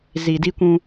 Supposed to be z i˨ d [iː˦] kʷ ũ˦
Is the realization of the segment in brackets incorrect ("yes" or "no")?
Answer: yes